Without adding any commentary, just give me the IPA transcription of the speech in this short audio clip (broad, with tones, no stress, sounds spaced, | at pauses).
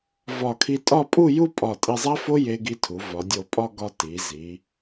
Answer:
v ɒ˧˩ kʰ i˧ tʼ ɒ˥˧ pʼ u˥˧ j u˥˧ pʼ ɒ˧˩ tʼ i˧ zˤ æ˥ f o˥ j e˧ ɡ i˧ tʰ u˩˧ v ɒ˩˧ dʲ o˧˩ pʼ ɒ˥˧ ɡ ɒ˧ t i˩˧ z i˩˧